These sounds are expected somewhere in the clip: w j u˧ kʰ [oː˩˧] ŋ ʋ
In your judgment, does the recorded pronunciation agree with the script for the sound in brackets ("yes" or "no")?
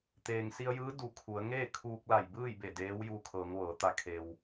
no